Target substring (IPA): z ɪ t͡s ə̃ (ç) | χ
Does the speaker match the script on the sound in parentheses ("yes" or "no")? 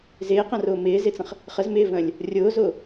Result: no